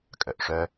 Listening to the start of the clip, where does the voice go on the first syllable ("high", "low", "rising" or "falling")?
low